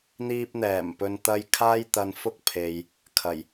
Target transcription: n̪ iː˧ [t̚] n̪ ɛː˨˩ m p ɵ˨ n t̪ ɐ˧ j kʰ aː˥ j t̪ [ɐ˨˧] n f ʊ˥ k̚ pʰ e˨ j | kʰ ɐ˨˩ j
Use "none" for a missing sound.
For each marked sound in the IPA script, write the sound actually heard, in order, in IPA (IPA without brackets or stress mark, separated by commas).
p̚, ɐ˧